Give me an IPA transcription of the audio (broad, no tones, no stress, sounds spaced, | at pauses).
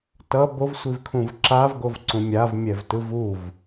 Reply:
t ʌ b o v sʷ i v kʰ ũ v ǁ a v ɡ o v ǀ ũ mʲ a v mʲ ɛ v t ɯ v u v